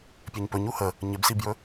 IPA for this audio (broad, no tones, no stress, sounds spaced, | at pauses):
pʲ ɛ ɲ p ɵ ɲ u h ə | ɲ ɪ b s i b j ɵ